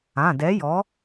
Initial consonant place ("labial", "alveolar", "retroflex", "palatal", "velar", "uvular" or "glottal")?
alveolar